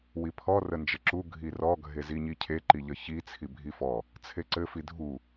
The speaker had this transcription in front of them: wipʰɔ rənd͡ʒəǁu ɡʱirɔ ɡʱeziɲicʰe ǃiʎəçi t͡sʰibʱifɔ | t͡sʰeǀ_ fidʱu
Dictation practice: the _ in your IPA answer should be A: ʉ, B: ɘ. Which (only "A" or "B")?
B